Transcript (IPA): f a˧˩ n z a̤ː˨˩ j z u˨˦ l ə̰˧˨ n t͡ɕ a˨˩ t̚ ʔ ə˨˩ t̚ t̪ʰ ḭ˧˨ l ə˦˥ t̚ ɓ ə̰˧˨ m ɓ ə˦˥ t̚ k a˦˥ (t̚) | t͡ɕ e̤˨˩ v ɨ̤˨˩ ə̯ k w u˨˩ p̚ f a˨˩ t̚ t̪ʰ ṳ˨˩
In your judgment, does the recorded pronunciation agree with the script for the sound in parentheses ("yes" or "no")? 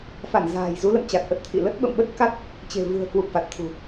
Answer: yes